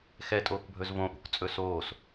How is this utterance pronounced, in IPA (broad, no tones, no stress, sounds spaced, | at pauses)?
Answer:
x ɛ tʼ oː k bʱ ɵ z v õ ʔ ṳ k t͡sʼ ɵ s oː s